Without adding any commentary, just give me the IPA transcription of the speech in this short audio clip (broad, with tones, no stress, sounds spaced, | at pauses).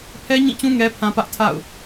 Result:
pʰ ɛ˦ ɲ ĩ˦˨ t͡ɕ ũ˦ ŋ ɛ˦ pʰ ã˦ p ä˦ ʔ tʰ a̰˦˨ ʊ̯